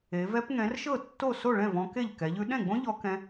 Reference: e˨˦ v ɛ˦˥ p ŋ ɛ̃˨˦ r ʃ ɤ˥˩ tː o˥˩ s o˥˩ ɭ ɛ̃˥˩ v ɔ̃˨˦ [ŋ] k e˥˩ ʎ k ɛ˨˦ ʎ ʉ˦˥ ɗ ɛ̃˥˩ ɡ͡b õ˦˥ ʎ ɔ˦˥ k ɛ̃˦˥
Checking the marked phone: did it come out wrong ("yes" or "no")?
yes